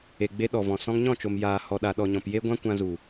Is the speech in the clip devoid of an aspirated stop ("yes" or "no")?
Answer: yes